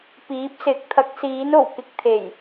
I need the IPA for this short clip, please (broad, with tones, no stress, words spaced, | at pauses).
piː˨˥p̚sɪ˨˥k̚ t̪ʰɐ˨˥k̚siː˨˥no˨˩w kɪ˧k̚t̪ʰe˨˩j